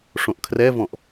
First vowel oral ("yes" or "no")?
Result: no